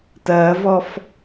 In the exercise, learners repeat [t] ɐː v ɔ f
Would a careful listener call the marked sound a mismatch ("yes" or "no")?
no